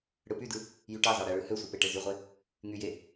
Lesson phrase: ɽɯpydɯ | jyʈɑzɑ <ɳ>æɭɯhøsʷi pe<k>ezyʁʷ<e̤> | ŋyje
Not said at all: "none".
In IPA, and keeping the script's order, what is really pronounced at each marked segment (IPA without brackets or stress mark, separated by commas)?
ɽ, ʈ, e